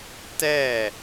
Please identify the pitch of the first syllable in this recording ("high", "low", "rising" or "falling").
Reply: falling